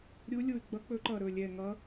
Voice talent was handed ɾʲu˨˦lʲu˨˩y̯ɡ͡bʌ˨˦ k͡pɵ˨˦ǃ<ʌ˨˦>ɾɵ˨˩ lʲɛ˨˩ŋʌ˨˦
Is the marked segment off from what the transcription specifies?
yes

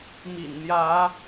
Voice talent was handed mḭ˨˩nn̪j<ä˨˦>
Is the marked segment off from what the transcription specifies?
no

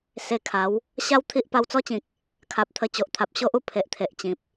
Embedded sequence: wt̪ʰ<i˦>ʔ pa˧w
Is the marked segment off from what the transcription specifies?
no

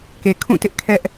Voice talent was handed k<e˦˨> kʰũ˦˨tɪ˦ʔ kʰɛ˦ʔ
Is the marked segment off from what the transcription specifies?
yes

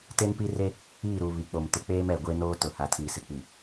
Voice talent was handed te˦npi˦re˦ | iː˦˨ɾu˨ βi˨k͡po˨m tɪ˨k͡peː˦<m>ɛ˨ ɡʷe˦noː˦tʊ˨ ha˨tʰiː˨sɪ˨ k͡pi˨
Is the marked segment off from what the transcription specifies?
no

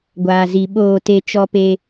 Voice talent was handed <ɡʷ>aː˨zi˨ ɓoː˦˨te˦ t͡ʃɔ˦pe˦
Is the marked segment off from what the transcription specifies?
no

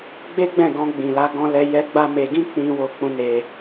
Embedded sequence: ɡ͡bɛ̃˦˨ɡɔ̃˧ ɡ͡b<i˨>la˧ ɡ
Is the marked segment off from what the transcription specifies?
yes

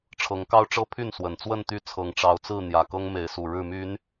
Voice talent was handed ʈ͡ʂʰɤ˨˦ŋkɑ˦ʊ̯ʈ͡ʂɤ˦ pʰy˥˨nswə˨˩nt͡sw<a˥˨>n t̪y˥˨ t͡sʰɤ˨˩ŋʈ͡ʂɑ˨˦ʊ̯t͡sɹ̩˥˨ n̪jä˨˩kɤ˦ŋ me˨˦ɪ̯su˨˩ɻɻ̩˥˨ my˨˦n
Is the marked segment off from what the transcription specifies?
yes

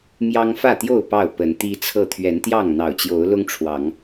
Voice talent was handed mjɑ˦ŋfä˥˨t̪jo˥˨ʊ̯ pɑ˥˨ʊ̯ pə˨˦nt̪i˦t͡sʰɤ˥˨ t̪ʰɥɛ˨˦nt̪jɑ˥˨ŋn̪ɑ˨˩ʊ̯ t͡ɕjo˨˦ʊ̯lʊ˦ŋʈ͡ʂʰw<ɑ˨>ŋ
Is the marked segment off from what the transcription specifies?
yes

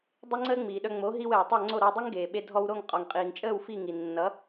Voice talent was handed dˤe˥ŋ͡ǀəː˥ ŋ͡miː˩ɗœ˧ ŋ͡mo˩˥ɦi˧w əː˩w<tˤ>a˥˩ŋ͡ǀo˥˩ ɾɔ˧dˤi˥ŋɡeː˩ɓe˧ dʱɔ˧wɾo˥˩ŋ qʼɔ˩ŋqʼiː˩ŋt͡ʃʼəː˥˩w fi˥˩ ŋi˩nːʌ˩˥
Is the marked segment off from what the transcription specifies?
no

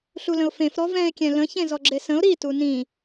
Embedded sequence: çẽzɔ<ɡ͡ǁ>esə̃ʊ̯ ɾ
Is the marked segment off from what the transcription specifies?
no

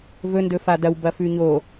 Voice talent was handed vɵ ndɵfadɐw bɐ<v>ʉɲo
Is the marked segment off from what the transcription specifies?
yes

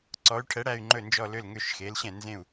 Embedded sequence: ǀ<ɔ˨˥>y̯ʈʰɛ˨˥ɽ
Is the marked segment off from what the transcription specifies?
no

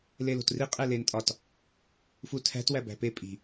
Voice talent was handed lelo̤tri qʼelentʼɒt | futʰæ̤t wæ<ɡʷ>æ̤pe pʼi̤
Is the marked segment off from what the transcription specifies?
yes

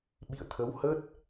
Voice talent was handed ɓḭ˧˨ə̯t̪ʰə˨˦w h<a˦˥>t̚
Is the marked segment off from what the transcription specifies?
yes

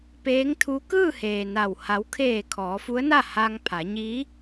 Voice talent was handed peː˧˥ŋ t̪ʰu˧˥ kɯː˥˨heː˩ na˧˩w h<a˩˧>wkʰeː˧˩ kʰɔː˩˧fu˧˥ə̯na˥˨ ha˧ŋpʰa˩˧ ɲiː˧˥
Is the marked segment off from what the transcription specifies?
no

